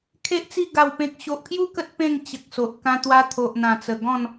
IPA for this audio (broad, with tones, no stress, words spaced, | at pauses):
kʰe˦ʔt͡si˥˧ ɡa˨˩wpẽ˨k̚ɕo˨ʔpʰju˦ kə˦t̚pẽ˥˧ŋ t͡ɕə˨k̚so˨ʔ kã˧t̪wa˧ t̪ʰo˨ʔn̪ã˨˩t͡sə˨˩ ɡɔ̃˥˧n